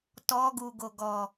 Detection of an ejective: absent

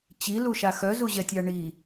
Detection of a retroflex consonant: present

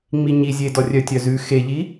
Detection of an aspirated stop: absent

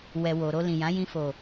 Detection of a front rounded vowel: absent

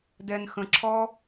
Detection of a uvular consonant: absent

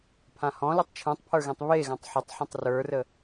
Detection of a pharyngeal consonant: present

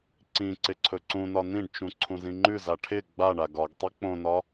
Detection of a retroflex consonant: present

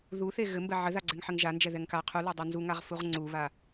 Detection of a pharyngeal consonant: present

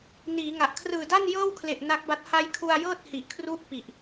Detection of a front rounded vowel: absent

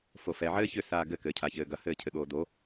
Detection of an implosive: present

